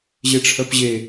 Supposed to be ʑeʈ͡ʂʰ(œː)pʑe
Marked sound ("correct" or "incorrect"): incorrect